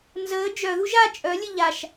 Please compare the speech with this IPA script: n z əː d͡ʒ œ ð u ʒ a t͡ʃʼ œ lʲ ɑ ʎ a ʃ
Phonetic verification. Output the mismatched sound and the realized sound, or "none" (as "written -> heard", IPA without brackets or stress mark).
ɑ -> ə